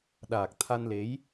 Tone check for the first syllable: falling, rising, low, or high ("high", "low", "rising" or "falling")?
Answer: low